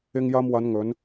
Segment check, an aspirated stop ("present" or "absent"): absent